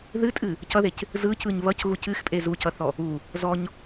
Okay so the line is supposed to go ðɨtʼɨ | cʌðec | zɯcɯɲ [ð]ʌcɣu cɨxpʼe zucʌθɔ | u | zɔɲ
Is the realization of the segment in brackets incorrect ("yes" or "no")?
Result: yes